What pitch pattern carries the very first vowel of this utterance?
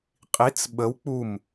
rising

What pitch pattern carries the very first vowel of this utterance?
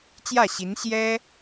falling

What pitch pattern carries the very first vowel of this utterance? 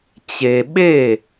low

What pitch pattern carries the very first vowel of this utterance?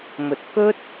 low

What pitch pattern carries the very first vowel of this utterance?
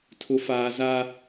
low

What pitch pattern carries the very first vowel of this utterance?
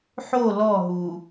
falling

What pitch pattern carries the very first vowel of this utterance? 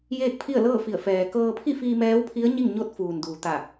falling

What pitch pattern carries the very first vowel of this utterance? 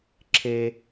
high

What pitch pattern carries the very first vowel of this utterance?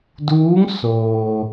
rising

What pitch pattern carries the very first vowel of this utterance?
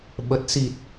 low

